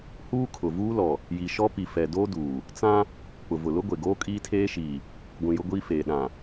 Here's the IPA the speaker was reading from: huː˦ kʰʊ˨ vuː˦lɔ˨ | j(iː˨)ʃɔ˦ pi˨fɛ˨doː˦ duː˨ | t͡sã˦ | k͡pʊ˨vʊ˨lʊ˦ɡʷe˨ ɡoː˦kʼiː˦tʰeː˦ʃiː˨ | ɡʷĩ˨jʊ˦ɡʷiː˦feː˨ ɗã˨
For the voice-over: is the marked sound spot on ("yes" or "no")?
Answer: no